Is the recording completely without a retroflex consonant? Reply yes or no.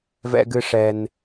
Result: no